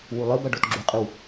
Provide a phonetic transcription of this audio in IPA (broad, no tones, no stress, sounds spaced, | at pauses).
w u lˠ ɯ b ʌ ɖ o t ɡ͡ǁ u qʼ ɯ w